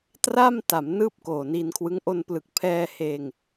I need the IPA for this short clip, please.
t r a˥˩ m t a˩˦ m n ɯː˥˩ p̚ k oː˨˩ n i˧ n kʰ w ɯ˦˥ ŋ ʔ o˧ n p l ɯ˨˩ k̚ pʰ ɛː˧ h eː˧ ŋ

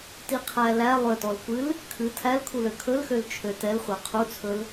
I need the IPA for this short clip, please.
t i qʰ æ l æ lˠ ø t ɔ l kʷ ɨ l | kʰ ɨ tʰ æ l kʰ u l ø kʰ ɵ l x ø l t͡ʃʰ ø t ɛ l χʷ a qʰ u t͡sʰ ɵ l

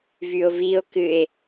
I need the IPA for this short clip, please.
v y o̯ v i o̯ k ɨ e̯

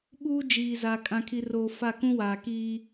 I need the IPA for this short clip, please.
ɓ uː˦ d͡ʒ iː˨ z a˨ kʼ ã˨ kʰ i˨ r oː˨ f a˦˨ k ũ˦ w aː˨ k iː˦

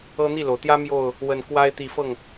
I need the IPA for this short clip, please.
ɤ˦ n̪ i˥˨ l o˩ ʊ̯ t̪ j ä˦ m j o˥˨ ʊ̯ | w ə˨˩ n k w a˦ ɪ̯ t̪ i˨˩ f ɤ˥˨ ŋ

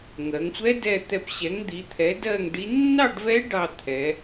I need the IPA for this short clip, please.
ŋ ɜ˩˧ ŋ sʷ ɛ˧˥ d ɛ˧˩ t̪ ɛ˧˩ p ɕ ɛ˩˥ ŋ d̪ i˩˧ t̪ʰ ɛ˩˥ d ɜ˥˨ ŋ ɖ i˧˥ nː ɑ˥˨ ɖ v ɛ˧˥ ɖ ɑ˧˩ t̪ʰ ɛ˩˧

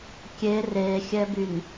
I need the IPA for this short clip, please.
kʲ e r e xʲ ɛ b y n

